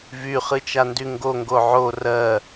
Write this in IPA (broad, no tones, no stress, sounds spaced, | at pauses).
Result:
v y χ ɨ t͡ʃ a n d y ŋ ɡ o ŋ ɡ o ʕ o r ɜ